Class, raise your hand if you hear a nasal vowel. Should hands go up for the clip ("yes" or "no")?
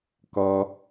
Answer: no